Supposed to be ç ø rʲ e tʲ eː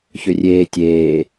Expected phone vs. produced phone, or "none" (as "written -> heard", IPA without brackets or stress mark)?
e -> eː